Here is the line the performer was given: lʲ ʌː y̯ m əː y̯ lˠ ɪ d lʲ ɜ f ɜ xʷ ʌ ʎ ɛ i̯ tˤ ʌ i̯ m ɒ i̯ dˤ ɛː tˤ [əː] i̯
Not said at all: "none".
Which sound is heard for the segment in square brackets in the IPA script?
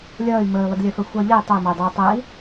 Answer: əː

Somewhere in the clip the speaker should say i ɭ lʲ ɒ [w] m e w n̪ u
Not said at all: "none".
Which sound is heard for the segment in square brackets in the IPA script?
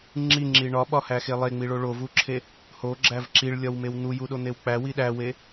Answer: w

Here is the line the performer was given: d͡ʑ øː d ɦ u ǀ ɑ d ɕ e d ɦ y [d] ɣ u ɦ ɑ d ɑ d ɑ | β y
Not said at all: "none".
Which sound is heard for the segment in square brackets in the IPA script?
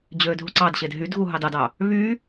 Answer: d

